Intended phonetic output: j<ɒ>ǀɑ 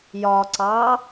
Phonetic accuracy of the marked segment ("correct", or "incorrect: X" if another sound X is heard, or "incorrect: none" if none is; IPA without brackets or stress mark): correct